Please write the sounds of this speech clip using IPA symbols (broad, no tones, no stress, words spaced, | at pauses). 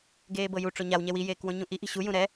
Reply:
ɡeːbɤju ʈ͡ʂoɲaw ɲɛwi jeːkwõɲũʔi ʔi̤ɕu jũɾɛ